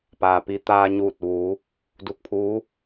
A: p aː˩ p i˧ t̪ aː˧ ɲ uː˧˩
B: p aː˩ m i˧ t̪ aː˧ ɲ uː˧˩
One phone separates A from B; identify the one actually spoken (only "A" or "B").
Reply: A